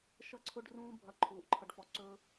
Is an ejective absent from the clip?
yes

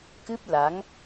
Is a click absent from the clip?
yes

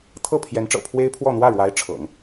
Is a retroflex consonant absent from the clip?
no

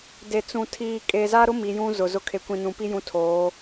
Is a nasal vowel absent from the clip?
no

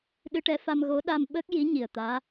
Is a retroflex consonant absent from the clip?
no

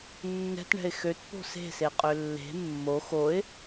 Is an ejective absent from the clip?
no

